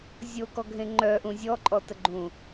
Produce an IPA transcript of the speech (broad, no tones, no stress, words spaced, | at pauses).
zʲokɔɡʱẽ ŋ͡ǃœʔũ zʲɔǃʼɔtəɡ͡ǃũ